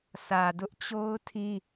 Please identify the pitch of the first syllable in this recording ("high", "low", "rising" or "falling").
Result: low